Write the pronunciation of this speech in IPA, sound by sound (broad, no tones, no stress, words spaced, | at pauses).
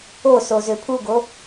oso zøpʰuɡo